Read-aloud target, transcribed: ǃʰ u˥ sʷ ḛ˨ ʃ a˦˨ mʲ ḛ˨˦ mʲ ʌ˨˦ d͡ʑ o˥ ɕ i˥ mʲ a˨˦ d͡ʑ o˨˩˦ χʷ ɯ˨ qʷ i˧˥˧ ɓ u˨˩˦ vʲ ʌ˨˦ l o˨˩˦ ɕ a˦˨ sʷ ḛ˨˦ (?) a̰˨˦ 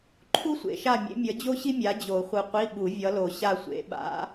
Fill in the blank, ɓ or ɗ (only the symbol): ɓ